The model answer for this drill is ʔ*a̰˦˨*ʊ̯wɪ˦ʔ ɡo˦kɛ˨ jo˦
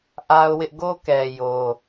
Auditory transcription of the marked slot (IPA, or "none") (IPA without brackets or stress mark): a˦